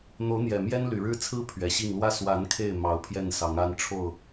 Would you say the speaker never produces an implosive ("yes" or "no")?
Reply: yes